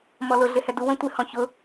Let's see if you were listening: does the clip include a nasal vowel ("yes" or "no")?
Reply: yes